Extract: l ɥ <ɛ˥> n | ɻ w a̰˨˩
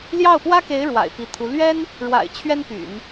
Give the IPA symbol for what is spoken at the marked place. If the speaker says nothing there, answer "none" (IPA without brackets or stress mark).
ɛ˥